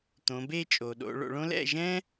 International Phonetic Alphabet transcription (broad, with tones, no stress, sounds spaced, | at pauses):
t̪ õ˩˧ b e˥˨ t͡ʃʼ o˩ ɗ o̰˩˧ ɭ o̰˩˧ ɭ õ˥ l ɛ̰˥˨ ʒ ɛ̃˥